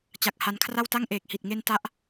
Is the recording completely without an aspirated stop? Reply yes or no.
no